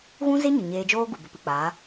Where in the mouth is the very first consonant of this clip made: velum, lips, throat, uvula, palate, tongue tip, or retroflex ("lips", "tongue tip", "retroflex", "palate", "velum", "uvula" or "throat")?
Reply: velum